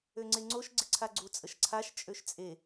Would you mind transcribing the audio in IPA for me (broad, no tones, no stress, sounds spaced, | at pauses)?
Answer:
ø ŋ͡ǀ e ŋ͡ǀ o ʃ ɡ͡ǀ ɪ ǀʰ a ɡ͡ǀ u t͡sʼ ə ʃ ǀʰ a ʃ t͡ʃʼ ø ʃ t͡sʼ e